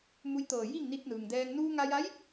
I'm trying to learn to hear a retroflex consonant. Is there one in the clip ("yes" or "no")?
no